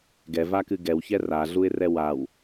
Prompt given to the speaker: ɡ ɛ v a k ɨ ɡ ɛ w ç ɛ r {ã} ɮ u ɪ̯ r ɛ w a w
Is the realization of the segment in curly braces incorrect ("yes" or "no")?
yes